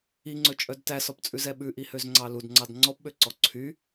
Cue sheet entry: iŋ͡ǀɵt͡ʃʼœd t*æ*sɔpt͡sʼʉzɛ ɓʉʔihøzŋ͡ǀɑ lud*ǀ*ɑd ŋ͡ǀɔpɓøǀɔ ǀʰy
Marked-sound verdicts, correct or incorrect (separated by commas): correct, incorrect